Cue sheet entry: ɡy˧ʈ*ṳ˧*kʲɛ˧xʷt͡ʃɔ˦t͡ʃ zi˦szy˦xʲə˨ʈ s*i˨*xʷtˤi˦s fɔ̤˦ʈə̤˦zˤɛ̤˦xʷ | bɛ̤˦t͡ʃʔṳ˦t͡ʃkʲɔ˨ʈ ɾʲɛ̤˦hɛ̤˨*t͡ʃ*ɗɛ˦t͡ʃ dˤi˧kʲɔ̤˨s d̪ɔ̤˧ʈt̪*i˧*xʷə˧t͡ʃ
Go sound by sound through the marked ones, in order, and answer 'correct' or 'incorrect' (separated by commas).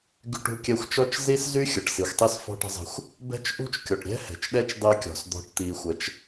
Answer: correct, correct, correct, correct